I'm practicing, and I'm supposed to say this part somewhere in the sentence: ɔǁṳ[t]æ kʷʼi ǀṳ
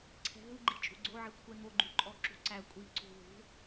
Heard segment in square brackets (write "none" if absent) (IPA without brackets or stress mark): ǀ